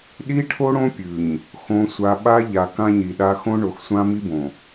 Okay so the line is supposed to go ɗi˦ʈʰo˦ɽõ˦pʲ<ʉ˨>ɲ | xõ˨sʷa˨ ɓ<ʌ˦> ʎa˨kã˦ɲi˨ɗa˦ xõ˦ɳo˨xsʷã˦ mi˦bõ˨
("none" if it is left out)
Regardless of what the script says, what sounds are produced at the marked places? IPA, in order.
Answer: ʉ˨, a˦

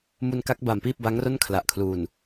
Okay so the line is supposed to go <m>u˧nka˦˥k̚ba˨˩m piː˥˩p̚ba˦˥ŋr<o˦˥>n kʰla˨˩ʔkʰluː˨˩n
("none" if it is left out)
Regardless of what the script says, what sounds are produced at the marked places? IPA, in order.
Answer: m, o˥˩

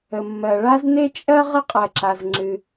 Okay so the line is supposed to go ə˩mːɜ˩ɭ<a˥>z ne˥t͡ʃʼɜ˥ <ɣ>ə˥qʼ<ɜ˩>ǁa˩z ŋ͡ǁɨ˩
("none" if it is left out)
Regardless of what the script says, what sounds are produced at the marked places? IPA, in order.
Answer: a˥, ʁ, ɜ˩

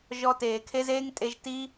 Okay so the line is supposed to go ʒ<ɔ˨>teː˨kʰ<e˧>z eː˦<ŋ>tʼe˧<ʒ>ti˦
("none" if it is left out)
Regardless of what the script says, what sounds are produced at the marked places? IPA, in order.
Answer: ɔ˧, e˦, ŋ, ʒ

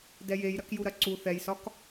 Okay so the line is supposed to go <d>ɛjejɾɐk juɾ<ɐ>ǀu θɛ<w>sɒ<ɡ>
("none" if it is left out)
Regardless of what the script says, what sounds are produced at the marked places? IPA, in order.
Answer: d, ɐ, j, k

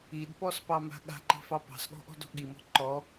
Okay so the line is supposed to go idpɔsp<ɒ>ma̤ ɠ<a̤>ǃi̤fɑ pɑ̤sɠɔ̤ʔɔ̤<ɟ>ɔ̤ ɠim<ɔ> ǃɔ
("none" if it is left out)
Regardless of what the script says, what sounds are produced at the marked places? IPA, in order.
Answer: ɑ, a̤, d, ɔ̤

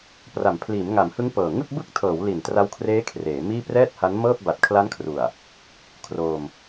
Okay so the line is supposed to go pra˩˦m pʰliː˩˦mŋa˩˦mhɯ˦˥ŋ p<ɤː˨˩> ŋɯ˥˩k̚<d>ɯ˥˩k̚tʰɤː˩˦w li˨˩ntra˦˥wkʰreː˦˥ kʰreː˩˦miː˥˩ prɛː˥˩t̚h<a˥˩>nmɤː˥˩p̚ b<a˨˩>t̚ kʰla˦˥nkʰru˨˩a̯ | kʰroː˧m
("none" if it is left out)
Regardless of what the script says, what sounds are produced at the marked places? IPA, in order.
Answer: ɤː˨˩, b, a˦˥, a˨˩

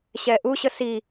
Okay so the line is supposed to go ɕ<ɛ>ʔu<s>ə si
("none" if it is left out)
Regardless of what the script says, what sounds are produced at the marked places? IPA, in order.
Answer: ɛ, ɕ

